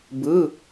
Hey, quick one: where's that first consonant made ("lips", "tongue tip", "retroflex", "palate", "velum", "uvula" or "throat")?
lips